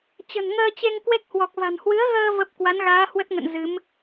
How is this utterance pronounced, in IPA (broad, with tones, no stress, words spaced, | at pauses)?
t͡ɕə̤˨˩nŋəː˧t͡ɕe˧ŋ kwe˦˥k̚hwɔ˨˩k̚va̤˨˩n hwɨ˨˦ə̯ɣəː˧ və˦˥p̚ kwa˨˦nɣaː˨˦hwə˦˥t̚ŋə̰˧˨n zɨ˨˦m